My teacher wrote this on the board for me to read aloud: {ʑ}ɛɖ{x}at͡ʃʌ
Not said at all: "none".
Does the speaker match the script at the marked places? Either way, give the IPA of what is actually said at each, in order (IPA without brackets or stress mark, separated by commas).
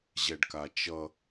ʑ, k